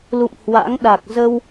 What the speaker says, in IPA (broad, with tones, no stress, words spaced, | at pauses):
lṵ˧˨mhwa̰˧˥ŋɗa˨˩k̚ zə˧w